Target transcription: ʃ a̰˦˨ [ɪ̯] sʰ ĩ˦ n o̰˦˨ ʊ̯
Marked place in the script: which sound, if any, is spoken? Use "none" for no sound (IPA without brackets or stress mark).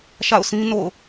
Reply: ʊ̯